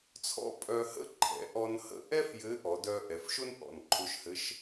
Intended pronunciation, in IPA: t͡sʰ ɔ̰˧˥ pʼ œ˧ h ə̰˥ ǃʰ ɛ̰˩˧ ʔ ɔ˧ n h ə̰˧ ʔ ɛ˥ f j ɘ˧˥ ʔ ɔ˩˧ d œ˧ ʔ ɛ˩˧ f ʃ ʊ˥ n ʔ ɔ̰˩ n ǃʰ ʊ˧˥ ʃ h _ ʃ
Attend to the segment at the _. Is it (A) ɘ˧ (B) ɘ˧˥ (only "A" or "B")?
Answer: B